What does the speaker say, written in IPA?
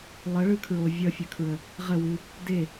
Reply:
lˠ ə ɭ ɯ kʰ ɹ o vʲ ʌ fʲ ə kʰ ɹ ə | ʁ ə w ɨ | d e

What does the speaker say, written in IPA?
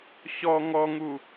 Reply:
ɕ ɔ ŋ ɔ ŋ u

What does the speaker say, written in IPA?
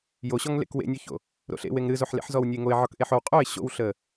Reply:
j o ɕ ɔ ŋ l ḛ k w ḛ nʲ o ç o̰ | ɾ o̰ ɬ ḛ w e ŋ ɾ ɨ z o ħ l ḛ ħ z ɔ w nʲ ə ɪ̯ ŋ o ɪ̯ ʕ ɔ k ʔ e ħ o w qʼ o ɪ̯ ɕ o̰ w ɬ ə

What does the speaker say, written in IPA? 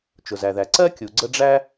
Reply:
t͡ʃ ʊ˩ z æ˩ ð æ˩ ǀ ɜ˥ kʲ u˩ ɡ͡ǀ ə˦ ɖ͡ʐ æ˥

